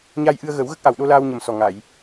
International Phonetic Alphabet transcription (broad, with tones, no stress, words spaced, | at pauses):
ɲa˧jʔɨ˧ə̯ɣə˨˩˦w ɣə˦˥k̚ʔa˨˩wɗo˧ laː˧wɲə˨˩msɔ˨˩ ŋa˨˩˨j